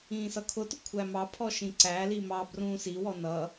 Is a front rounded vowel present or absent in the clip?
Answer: absent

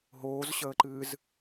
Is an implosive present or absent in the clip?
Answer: absent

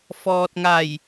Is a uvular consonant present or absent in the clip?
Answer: absent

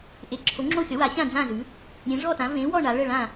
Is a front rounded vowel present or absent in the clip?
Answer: absent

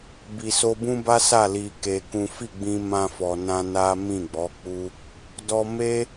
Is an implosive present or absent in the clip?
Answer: absent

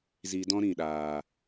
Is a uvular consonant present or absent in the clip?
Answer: absent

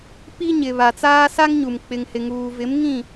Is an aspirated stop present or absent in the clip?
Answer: absent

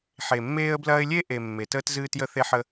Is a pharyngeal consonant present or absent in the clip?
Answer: present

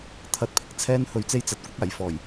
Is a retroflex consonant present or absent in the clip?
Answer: absent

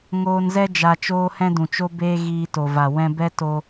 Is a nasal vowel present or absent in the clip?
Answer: present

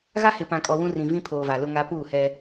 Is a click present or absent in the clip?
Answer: absent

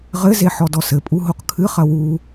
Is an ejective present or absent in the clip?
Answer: present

